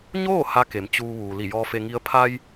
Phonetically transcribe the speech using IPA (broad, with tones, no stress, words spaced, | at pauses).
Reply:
ɲoː˥˨ ha˧˥ke˩˧m t͡ɕuː˧ʋuː˩ li˧˩jɔː˧fe˧ŋi˧˥ə̯ pʰa˧j